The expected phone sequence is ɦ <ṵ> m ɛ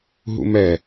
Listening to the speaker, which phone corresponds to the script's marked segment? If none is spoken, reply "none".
ṵ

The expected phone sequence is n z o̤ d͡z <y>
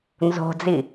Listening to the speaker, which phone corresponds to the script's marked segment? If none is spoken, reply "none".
i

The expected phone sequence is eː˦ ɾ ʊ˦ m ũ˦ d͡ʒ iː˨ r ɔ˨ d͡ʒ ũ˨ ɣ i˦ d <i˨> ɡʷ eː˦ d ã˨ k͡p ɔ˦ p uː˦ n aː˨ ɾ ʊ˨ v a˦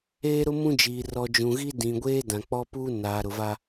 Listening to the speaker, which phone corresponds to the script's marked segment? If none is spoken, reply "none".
ĩ˨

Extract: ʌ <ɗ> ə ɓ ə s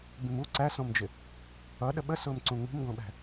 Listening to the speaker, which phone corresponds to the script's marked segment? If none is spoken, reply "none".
ɗ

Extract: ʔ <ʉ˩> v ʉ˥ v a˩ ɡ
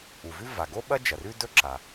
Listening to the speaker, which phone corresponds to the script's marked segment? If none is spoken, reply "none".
u˩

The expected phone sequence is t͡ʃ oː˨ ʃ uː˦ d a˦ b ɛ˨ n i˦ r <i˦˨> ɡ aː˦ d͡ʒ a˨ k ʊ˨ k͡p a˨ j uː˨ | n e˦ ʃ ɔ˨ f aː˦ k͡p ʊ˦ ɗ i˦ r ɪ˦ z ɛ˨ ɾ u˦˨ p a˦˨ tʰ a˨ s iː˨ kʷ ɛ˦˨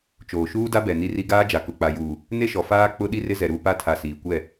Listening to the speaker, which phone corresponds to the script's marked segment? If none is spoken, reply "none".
i˦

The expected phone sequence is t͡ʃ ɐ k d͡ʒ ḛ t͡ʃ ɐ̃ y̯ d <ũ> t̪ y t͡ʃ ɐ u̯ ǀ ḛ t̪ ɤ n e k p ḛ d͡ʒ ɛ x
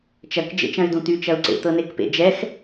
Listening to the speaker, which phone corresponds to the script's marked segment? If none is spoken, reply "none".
ũ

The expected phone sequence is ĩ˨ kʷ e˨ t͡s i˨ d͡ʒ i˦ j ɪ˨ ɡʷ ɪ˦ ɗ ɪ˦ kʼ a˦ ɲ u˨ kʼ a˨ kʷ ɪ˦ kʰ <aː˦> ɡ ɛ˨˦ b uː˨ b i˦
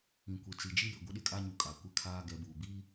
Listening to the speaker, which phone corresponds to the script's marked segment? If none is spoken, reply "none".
aː˦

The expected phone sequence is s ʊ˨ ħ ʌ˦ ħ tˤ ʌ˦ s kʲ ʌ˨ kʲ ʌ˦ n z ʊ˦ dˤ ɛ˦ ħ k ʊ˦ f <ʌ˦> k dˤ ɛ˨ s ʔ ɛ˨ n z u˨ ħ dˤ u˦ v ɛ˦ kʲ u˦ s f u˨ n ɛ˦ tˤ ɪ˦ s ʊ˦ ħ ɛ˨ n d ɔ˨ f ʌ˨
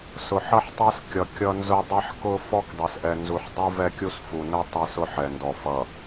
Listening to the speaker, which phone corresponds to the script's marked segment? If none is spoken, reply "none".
ɔ˦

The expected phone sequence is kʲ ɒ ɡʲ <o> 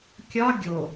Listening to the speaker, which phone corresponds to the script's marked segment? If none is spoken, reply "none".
o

